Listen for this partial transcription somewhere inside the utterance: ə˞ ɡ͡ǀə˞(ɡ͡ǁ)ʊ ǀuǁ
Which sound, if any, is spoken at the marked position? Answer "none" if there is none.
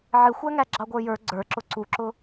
ǁ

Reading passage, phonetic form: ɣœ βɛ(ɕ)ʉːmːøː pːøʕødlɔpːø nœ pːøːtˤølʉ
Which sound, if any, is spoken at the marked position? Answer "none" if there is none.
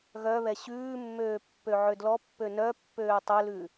ɕ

